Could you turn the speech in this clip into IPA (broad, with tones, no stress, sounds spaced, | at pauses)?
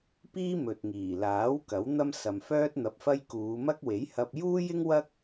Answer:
p iː˥ m ɵ˨ t̚ ŋ iː˨˩ l aː˨˥ w k ɐ˨˥ w n̪ ɐ˥ m s ɐ˨ m f œː˥ t̚ n̪ ɐ˧ p̚ f ɐ˥ j k uː˨˧ m ɐ˥ k̚ w e˨˥ j h ɐ˧ p̚ j uː˥ j ɪ˥ ŋ w ɐ˥ k̚